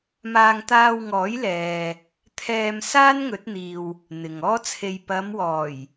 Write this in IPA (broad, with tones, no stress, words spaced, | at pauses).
maː˧ŋt̪aː˧wŋɔː˨˥jlɛː˨ | t̪ʰɛː˧m saː˥nŋɵ˨˥t̚n̪iː˨w | n̪ɪ˨ŋɔː˥t͡sʰe˧j pɐ˨˧mwɔː˨˩j